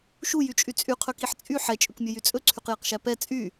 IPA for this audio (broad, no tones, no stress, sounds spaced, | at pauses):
ʃ u j y t͡ʃʼ y t͡sʼ y qʰ ɵ k i ħ t͡sʼ y ħ ɛ t͡ʃʼ ɵ k mʲ ɵ j y t͡sʼ ɵ ǀʰ y q j ɛ q ʃ æ p ɛ t͡sʼ y